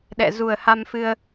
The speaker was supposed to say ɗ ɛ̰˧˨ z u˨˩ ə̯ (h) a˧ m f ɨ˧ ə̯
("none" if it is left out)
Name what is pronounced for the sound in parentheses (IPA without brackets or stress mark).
h